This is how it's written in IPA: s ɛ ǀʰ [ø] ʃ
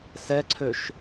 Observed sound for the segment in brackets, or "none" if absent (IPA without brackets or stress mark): ø